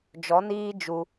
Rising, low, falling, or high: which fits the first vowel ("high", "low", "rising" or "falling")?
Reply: rising